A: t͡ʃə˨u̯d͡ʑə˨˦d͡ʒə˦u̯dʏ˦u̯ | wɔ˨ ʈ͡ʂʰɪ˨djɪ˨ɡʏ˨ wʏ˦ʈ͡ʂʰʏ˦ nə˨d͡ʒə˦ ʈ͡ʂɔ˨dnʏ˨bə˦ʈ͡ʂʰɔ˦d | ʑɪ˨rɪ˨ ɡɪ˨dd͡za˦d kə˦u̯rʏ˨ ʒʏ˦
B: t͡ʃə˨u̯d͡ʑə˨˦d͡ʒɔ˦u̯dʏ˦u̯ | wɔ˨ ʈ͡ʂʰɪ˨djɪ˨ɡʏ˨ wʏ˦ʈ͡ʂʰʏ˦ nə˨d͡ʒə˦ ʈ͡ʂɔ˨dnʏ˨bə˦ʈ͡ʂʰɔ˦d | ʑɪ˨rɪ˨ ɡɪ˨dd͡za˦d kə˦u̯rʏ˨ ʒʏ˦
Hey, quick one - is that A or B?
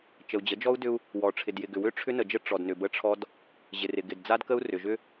B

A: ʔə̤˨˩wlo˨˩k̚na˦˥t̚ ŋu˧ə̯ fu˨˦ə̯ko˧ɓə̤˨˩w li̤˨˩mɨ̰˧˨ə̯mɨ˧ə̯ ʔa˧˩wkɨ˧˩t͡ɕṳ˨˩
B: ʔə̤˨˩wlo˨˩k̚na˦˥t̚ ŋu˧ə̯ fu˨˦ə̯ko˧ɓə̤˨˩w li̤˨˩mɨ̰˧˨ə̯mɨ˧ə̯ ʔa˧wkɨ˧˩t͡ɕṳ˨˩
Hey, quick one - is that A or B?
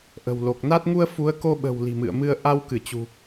B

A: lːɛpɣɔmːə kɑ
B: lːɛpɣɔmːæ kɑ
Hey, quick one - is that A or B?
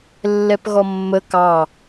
A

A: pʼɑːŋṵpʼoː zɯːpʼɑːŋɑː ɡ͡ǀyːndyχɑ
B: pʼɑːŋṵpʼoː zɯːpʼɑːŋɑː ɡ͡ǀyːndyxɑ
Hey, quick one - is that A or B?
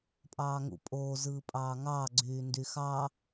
B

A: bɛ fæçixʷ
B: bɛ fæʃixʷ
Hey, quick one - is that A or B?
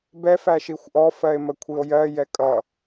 B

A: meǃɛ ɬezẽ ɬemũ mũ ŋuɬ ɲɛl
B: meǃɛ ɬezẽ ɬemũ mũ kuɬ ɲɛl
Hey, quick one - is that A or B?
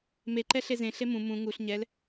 A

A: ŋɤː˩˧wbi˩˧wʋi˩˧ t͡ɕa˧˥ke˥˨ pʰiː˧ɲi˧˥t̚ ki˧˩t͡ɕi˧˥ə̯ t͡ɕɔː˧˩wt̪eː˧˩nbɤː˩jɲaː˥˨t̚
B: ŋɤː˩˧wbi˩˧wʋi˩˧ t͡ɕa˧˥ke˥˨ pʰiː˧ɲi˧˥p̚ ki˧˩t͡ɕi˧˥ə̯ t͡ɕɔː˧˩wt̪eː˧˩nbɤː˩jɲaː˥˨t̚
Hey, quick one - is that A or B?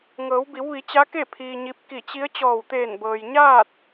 B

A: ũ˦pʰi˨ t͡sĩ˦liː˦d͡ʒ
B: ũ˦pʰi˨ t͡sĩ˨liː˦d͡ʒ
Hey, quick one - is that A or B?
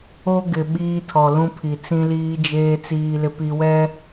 A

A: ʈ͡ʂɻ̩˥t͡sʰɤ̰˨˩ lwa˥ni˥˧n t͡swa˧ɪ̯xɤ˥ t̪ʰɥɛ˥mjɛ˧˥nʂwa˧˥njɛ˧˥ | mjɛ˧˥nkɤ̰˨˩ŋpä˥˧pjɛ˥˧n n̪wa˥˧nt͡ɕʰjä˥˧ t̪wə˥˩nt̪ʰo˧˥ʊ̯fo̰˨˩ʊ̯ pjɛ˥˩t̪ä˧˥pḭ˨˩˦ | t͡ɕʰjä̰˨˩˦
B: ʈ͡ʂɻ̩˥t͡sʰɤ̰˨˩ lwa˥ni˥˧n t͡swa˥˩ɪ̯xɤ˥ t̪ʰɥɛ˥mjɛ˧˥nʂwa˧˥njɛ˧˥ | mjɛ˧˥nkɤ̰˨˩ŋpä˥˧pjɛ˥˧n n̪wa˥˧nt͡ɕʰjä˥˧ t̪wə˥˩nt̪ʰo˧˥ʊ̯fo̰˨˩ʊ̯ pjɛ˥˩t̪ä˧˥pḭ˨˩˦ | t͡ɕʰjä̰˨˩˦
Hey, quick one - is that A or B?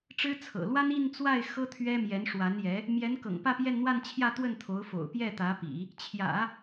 B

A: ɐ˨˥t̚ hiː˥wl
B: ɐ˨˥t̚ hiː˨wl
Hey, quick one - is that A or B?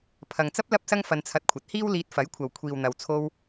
A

